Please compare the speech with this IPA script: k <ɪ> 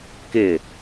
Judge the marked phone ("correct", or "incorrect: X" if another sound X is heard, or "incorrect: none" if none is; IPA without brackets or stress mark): correct